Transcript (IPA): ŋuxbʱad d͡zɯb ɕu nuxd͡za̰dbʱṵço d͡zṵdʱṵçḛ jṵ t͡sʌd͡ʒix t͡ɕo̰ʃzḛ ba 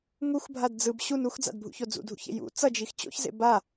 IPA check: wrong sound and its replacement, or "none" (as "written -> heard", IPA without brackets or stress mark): ʃ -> ç